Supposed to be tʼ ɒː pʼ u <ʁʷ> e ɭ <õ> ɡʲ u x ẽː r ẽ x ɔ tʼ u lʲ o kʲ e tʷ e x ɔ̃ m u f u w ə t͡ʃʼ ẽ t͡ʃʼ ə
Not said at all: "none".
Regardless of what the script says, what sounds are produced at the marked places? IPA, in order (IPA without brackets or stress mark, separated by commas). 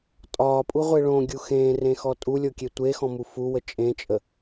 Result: ʁʷ, õ